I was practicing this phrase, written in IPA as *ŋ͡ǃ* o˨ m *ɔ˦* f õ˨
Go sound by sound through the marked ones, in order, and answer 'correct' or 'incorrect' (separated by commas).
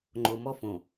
correct, correct